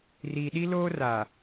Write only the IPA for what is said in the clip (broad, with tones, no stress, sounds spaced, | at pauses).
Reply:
r iː˨ ɗ i˦ l oː˦ r a˨